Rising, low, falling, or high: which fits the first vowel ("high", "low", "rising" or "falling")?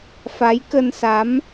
rising